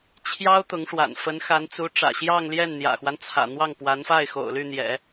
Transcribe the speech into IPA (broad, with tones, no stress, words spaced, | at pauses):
t͡ɕʰjɑ˥ʊ̯ t̪ʊ˧˥ŋʂwa̰˨˩n fə˧˥nxa˧˥nt͡su˧˥ ʈ͡ʂä̰˨˩ɕjɑ˥˧ŋljɛ˥˩n n̪jä̰˨˩xwa˦nt͡sʰä̰˨˩ n̪wɑ˥˩ŋpwa˧˥nfa˥˩ɪ̯ xo̰˨˩ʊ̯ly˥˩n̪jɛ̰˨˩˦